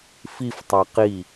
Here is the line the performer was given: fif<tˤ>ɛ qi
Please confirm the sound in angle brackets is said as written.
yes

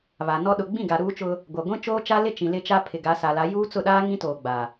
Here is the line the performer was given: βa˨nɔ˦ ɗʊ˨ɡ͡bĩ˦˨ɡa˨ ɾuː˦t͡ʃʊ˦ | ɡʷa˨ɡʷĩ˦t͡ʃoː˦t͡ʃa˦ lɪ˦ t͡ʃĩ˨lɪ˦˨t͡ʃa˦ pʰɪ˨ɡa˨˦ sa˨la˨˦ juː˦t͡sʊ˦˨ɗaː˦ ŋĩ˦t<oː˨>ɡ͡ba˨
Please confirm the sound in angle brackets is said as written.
yes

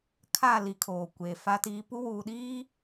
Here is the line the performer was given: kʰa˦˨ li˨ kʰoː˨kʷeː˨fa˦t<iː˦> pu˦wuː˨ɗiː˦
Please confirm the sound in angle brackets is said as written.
yes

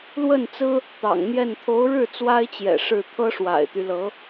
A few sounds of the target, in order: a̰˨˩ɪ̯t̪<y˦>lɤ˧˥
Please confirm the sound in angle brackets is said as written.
yes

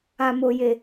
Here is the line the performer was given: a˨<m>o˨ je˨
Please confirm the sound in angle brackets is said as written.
yes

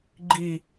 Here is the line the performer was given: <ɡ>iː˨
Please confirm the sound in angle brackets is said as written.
no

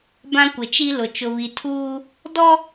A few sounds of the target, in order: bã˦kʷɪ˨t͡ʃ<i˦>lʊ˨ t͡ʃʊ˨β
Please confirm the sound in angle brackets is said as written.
yes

